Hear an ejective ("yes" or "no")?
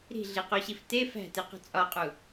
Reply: yes